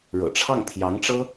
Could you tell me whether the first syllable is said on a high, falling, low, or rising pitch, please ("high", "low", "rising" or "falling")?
low